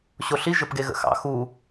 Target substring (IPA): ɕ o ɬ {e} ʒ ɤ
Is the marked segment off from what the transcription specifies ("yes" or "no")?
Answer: yes